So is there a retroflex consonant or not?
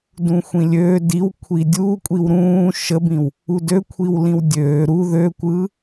no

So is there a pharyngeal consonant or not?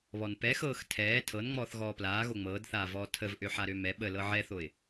yes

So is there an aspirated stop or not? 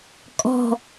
no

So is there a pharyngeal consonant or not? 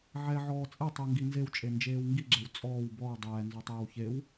yes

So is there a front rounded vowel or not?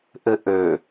yes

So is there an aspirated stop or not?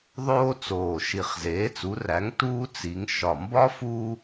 no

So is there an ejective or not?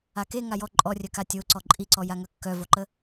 yes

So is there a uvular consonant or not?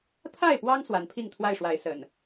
no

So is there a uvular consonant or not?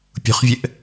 yes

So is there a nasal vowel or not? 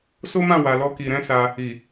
yes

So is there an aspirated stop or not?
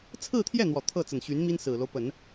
yes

